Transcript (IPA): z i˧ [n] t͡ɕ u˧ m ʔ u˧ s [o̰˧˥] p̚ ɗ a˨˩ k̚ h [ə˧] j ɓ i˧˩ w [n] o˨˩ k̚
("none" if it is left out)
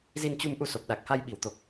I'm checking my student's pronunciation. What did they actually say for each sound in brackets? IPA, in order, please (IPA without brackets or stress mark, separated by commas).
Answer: n, o˨˩, a˧, t̪